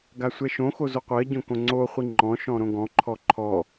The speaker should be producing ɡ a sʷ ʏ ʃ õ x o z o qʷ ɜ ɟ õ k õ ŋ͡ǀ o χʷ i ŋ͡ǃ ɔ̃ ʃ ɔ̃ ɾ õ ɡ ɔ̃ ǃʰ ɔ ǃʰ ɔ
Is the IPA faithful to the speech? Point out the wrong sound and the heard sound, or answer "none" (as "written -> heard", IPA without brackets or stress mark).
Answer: ʏ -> ɛ